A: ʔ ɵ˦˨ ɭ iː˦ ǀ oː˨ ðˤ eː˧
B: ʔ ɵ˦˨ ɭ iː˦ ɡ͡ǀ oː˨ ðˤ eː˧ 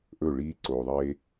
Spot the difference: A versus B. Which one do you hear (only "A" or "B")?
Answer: A